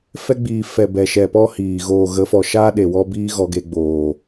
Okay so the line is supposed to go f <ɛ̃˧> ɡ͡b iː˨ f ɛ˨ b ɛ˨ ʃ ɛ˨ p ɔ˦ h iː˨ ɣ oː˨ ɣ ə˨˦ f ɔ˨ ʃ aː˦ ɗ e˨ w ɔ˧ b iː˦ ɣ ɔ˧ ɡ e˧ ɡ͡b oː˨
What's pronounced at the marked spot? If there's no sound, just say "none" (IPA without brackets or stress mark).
ɛ˧